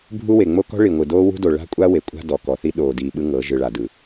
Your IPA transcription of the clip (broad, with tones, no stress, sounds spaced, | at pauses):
bʱ u˦ w e˨ ŋ͡m o˦ k ɔ̤˦ ɭ i˨ ŋʷ ɯ˨ d oː˦ w ṳ˦ d o˨ ɭ a̤˦ kʷʼ a˦ w e˨ kʷʼ a̤˦ d ɔ˨ k ɔ˨ θ i˦ ɗ oː˨ d iː˨ ɓ ɯ˦ ŋ ɤ˨˦ ʒ ɯ˨ ɭ a˨ d ɯ˨